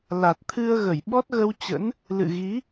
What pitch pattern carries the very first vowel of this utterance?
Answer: low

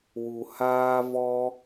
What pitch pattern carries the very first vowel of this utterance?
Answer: low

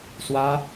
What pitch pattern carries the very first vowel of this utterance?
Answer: high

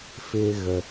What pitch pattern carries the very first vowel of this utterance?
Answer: low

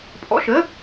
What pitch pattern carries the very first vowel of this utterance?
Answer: rising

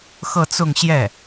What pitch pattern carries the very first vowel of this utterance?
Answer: falling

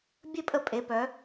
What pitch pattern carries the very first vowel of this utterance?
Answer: falling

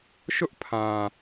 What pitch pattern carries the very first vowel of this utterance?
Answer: high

